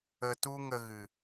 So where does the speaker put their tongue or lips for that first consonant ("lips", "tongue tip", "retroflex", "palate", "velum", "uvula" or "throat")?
tongue tip